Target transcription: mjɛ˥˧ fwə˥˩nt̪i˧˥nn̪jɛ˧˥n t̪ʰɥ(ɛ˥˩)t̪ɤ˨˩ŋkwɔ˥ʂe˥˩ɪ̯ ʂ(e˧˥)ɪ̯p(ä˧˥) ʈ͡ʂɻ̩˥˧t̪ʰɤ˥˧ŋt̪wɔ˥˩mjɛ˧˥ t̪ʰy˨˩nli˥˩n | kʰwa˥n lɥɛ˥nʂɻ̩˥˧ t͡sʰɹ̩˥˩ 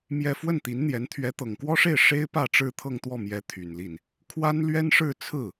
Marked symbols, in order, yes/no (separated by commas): no, no, no